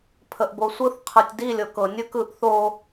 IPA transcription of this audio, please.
pʰ ə ʔ b o sʷ ɯ θ qʰ ɯ tʲ d i lʲ ɤ k ɤ nʲ ɯ k ɯ ʔ θ o

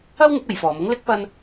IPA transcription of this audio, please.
ɐ˥ w ŋ ɪ˨˥ k̚ ɐ˨˧ j f ɔː˨˧ m ʊ˥ ŋ l ɪ˥ k̚ p ɐ˥ n

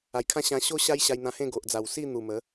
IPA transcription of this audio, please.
a˨˩ j kʰ ã˦ ɕ ã˧ ɕ o˦ ɕ a˦ j ɕ a˧ j n̪ ã˧ h ẽ˥˧ ɡ o˨ ʔ d͡z a˨˩ w s i˥˧ n̪ u˨˩ m ə˨˦

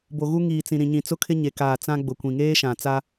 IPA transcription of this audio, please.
b o˨ ɣ u˦ ŋ iː˨ t͡s ĩ˨ ɾ ĩ˨ ɲ ĩ˨ t͡s ʊ˦ kʰ ɪ˦ ɲ e˨ k aː˨ t͡s ã˦ ɡ͡b ʊ˨ kʷ ĩ˨ ŋ eː˦ ʃ ã˨ t͡s a˦

